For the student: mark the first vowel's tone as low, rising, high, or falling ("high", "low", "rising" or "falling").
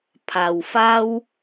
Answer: low